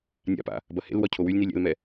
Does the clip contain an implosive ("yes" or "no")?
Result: no